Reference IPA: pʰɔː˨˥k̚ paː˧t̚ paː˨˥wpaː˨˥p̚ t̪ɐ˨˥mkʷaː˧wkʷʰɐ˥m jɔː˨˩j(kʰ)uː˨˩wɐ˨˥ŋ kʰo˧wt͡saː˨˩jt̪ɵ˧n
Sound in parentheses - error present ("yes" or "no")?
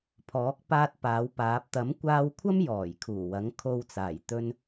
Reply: no